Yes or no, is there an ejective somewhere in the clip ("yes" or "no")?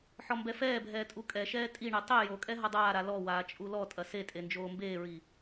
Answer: yes